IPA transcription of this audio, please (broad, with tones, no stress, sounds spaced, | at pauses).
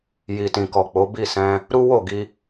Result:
j i˨ t ĩ˨ k ɔ˨ k͡p o˨˦ b i˦˨ s ɛ̃˧ | ɾ u˦ w o˦˨ ɡ i˧